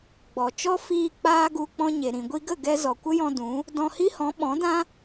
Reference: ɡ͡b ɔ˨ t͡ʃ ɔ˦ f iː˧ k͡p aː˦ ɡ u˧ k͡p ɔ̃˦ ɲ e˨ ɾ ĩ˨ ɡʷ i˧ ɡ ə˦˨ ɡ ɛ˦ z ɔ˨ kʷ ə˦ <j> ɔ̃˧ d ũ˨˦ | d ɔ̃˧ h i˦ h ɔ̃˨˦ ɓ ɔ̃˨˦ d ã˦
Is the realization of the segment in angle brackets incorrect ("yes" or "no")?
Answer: no